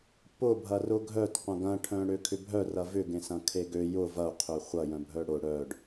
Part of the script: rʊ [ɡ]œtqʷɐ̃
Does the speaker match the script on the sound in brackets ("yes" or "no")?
no